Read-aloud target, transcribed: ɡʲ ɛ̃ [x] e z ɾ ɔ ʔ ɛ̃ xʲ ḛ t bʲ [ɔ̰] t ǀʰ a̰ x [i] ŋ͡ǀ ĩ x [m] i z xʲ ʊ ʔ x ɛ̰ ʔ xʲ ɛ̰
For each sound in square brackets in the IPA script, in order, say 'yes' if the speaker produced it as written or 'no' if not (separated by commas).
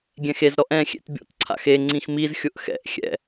yes, yes, no, yes